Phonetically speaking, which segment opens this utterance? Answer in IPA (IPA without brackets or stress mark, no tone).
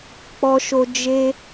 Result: k͡p